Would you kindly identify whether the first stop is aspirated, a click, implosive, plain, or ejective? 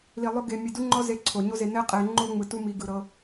plain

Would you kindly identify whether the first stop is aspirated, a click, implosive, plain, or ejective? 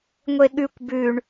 implosive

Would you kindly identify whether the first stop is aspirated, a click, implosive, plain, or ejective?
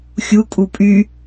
ejective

